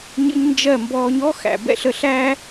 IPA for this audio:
ɲ ə̰˦ ɲ n d͡ʒ ɜ˦˨ m b ɔː˧ ɲ ɔ˦ x æ̰˨ b ɛ̰˧ ɬ ə˧ ɬ æ˦

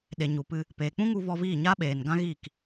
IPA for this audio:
ɗ e˨ ɲ u˨ p ɨ˧ | p eː˨ k͡p ũ˦ ŋ u˧ v ɔ˧ v iː˦˨ ɲ aː˦ ɓ eː˨ n ɡ ã˦ ɣ iː˦˨ k

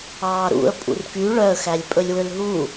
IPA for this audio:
ɑː ɾ ṵ ə̯ pʼ ṵ r k y ɭ œ ə̯ x æ lʲ pʼ ɵ lʲ w ø l ɦ u

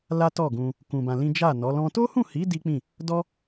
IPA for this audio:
l a˦ t ɔ˦˨ ɡ ũ˧ | k ũ˧ b ã˧ l ĩ˦ d͡ʒ a˦˨ n ɔ˨˦ l ɔ̃˦ t o˦ h ũ˦˨ h i˨˦ d i˦ k͡p ĩ˦˨ | d ɔ˦

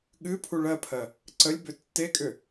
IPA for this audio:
ɠ ɨ pʰ u ɭ ɜ pʰ ɜ | ǀ ə lʲ b ʏ tː e kʼ ʏ

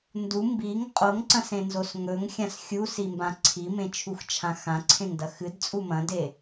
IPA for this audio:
n d u m b i ŋ qʼ o ŋ ǀ ɐ̃ s ẽ n z o s ŋ ɵ ŋ xʲ ã s xʲ u s i m b ã ǀʰ i m ẽ t͡ʃʰ u x t͡ʃʰ ã x ã ǀʰ ẽ ŋ d ɐ x ɨ d t͡sʼ u m ɐ̃ d e

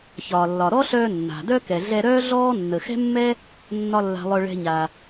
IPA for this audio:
ç ɒː˩ lː ɒ˩ ɾ ɔ˥ ɬ œː˧ nː a̤˩ d œ˥ k ɛ˩ ɮ ɛ˧ ɾ œː˥ ɮ ɔː˥ nː ə˩ x ɛ̤˥ mː ɛ˥ | nː ɒ˥ lː a̤˧ lˠ œ˧ ɭ ɛ̤˧ ɲ a˩

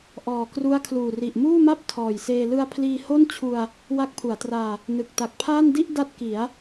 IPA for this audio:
ʔ ɔː˨˩ k r u˦˥ a̯ kʰ l uː˨˩ r i˨˩ ʔ m uː˥˩ m a˥˩ p̚ tʰ ɔː˨˩ j s eː˧ l ɯ˧ a̯ pʰ l iː˧ h o˥˩ n t͡ɕʰ u˧ a̯ | w a˦˥ k̚ pʰ u˩˦ a̯ t r aː˧ | n ɯ˨˩ k̚ t a˨˩ k̚ pʰ aː˥˩ n d i˥˩ ʔ d a˥˩ t̚ k i˩˦ a̯

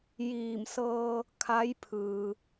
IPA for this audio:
j iː˧˩ m s ɤː˧ | kʰ a˧˥ j pʰ ɯː˩

